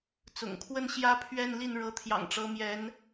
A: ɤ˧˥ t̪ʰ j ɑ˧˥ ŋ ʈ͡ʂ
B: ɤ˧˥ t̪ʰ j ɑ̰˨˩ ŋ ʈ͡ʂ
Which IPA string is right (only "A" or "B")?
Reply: B